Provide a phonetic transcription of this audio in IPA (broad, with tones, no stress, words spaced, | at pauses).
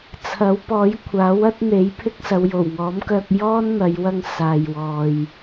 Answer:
t͡sʰɐ˨˥wpɔː˨˥jkʷʰaː˨˥w ɐ˥t̚n̪e˨˥jpʰɪ˥k̚ sɐ˨˧wjo˨˩wŋɔː˨˥mkœː˧k̚ jɔː˥n n̪ɐ˨˧jwɐ˧ŋ saː˨jwɔː˨j